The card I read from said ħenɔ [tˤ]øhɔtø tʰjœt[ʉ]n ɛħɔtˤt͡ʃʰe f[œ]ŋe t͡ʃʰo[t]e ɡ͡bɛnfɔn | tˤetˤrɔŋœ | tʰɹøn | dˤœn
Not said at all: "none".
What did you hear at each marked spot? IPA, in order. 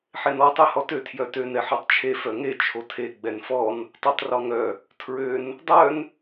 tˤ, ø, œ, tʰ

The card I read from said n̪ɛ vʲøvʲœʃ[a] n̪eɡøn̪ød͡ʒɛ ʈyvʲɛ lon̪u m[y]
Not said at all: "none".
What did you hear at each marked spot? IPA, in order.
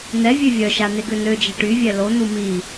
a, i

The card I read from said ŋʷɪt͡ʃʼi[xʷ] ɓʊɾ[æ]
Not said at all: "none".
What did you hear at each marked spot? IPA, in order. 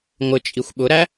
xʷ, æ

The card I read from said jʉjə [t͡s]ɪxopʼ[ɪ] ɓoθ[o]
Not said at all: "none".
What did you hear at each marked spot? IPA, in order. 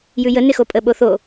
n, ə, o

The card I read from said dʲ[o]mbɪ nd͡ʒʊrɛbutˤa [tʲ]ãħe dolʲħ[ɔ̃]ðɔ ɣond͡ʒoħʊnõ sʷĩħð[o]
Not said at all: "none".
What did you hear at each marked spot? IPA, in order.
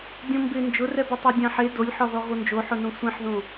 õ, dʲ, ɔ, õ

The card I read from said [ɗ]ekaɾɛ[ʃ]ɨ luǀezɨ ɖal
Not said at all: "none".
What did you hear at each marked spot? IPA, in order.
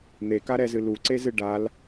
n̪, z

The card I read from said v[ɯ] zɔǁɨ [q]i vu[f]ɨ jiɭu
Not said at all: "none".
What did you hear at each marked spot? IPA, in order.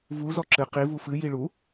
u, q, f

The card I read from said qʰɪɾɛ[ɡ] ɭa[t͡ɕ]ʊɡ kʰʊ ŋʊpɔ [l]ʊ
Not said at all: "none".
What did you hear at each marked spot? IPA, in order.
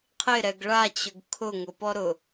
ɡ, t͡ɕ, ɾ

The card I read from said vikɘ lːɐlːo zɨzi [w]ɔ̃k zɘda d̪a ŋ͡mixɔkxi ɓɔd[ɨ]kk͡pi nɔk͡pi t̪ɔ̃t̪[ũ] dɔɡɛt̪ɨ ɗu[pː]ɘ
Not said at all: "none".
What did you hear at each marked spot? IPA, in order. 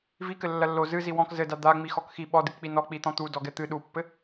w, ɨ, u, pː

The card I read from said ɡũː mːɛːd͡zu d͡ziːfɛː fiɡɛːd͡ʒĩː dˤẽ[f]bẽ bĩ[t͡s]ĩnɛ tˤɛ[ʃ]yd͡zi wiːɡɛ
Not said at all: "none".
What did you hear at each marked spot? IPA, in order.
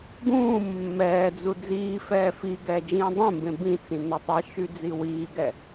m, t͡s, ʃ

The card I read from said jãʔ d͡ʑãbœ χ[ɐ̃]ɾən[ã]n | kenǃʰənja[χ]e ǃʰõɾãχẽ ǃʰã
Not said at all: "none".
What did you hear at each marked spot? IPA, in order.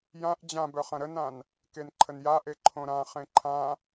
ɐ̃, ã, ʔ

